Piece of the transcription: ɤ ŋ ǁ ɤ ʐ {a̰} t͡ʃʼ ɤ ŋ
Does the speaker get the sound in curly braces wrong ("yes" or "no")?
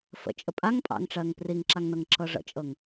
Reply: yes